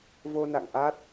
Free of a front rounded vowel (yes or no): yes